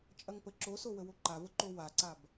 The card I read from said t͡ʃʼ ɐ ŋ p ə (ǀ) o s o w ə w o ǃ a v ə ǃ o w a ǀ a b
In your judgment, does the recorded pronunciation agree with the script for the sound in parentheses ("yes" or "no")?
no